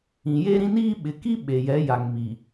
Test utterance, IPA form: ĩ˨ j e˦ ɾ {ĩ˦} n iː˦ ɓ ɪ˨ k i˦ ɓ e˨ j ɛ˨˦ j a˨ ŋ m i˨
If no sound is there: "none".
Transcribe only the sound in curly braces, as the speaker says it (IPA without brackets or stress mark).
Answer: ĩ˦